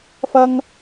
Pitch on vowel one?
high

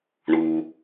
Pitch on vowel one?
low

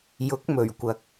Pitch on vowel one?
rising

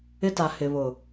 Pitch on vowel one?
high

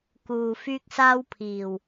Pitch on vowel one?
low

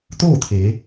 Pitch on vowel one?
falling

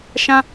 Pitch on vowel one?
high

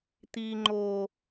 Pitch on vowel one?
high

